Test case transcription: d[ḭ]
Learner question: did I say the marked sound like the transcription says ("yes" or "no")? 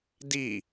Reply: no